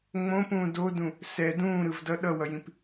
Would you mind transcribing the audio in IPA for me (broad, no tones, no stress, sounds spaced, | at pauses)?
ŋ͡m õ p ũː d o d ũ | s ɛ d ũː ɾ ɯ v d ʌ ɗ ʌ w ʌ j ĩ p